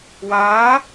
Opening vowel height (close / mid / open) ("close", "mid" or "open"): open